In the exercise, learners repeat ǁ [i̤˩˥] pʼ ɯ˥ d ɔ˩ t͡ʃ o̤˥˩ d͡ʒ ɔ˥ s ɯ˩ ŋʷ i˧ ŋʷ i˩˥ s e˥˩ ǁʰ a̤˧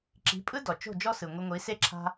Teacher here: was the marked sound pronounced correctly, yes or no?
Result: yes